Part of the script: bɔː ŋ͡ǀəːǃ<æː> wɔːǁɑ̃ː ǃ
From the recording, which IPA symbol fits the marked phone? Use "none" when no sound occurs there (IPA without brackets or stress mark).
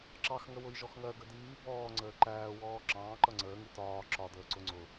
æː